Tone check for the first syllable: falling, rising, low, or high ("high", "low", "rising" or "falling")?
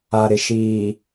low